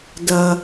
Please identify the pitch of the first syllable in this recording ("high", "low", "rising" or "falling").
low